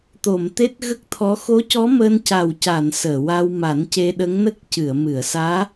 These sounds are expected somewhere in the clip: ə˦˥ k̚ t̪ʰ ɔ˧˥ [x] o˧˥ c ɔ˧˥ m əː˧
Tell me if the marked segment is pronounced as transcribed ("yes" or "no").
yes